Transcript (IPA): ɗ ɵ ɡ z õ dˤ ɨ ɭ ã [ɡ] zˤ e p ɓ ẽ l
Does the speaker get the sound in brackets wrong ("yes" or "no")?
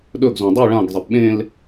no